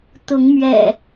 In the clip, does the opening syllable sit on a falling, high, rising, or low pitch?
rising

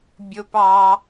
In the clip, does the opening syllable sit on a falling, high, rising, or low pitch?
high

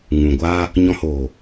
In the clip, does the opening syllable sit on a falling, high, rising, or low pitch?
low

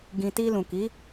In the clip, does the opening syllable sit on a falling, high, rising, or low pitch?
low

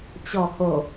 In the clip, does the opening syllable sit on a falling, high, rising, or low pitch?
low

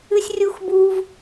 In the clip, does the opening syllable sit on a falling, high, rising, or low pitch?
high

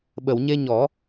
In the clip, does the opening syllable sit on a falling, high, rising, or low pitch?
low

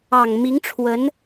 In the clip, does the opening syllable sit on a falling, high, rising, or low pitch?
low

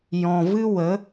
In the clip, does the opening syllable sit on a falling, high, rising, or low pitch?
low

